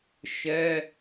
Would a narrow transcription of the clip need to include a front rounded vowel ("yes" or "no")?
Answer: yes